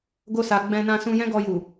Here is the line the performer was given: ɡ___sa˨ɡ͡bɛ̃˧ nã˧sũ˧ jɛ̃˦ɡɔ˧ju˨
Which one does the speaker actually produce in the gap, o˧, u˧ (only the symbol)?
o˧